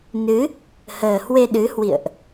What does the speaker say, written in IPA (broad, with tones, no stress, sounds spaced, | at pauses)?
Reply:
n ɨ˨˦ | h əː˨˩ h w e˧ ɗ ɨ˨˦ h w ḭ˧˨ ə̯ ʔ